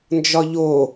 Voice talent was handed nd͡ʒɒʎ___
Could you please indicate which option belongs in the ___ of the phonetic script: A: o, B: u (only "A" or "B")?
A